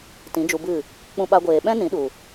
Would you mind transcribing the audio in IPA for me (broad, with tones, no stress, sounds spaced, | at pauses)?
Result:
t ĩ˨˦ d͡ʒ u˧ b ɨ˦˨ | k͡p ũ˧ ɓ a˧ ɡʷ eː˨ ɓ ɛ̃˦ n ĩ˨˦ ɗ u˨